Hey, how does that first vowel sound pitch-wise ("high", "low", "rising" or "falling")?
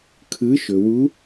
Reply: rising